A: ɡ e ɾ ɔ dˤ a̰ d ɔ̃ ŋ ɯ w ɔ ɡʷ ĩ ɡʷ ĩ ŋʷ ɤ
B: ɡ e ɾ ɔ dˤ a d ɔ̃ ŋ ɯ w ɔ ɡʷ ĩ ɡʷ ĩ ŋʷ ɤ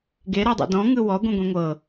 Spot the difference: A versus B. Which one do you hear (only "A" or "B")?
A